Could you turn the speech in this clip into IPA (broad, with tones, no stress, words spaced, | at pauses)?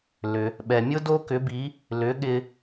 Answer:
lʏ˩ | ɓɛ˩mʲʊ˥ do˥kʏ˩˥bi˩˥ | lʏ˩˥ɠɪ˧